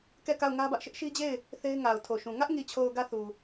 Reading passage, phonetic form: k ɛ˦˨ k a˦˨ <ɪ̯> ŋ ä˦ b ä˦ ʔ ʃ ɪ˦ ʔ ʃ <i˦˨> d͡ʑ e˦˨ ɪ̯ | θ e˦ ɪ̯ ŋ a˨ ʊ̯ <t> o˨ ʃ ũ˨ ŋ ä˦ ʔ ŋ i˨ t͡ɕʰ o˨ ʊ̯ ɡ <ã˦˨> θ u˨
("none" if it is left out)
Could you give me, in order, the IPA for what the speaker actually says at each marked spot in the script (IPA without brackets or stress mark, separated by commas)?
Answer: ʊ̯, i˦, tʰ, ä˦˨